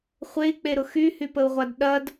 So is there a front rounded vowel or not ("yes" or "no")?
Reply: yes